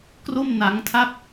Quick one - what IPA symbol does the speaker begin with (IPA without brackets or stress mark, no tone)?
k